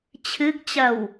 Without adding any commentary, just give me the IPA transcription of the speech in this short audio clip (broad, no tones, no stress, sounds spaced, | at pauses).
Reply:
t͡ɕʰ ɨ ɡ t͡ɕ ɐ w